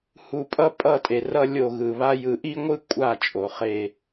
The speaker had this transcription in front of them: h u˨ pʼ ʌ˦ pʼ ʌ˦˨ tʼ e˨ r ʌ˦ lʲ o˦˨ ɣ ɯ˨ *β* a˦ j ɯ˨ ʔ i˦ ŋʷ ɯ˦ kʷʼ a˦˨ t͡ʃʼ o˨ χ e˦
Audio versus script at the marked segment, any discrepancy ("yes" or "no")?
no